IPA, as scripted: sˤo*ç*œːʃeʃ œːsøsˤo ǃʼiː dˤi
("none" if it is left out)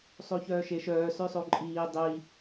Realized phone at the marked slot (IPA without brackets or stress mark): ç